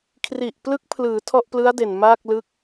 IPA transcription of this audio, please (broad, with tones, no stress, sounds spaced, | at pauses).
kʰ r i˨˩ ʔ p l ɯ˦˥ k̚ pʰ l ɯː˩˦ tʰ ɔ˥˩ ʔ p l ɯ˦˥ a̯ d e˨˩ n m aː˥˩ k̚ l ɯ˦˥ k̚